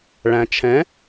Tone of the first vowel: low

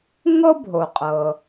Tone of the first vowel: high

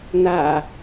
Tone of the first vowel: low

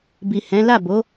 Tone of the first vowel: low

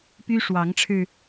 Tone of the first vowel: high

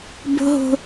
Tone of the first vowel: high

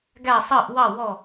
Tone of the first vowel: falling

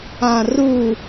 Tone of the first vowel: low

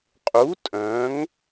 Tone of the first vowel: rising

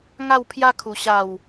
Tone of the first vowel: falling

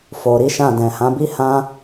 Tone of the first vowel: low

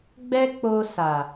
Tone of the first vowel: high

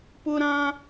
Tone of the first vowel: high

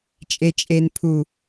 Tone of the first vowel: low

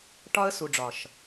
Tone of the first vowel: high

